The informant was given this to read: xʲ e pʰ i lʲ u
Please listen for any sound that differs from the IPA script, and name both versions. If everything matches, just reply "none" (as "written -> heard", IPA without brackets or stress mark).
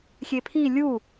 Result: none